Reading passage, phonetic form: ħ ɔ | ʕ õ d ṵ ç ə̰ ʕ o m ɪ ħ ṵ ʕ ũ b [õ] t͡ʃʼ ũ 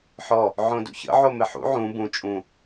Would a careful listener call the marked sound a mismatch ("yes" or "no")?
yes